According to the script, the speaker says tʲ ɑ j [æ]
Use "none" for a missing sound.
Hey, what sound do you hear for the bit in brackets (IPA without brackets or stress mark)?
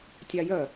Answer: œ